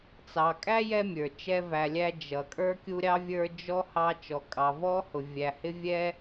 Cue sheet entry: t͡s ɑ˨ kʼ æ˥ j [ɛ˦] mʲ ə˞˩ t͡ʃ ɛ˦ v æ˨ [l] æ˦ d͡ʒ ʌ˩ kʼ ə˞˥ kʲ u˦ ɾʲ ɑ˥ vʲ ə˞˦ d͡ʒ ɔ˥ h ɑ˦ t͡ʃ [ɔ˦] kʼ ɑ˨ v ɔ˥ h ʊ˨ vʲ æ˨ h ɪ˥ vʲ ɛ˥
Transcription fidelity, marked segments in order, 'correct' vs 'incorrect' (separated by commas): correct, incorrect, incorrect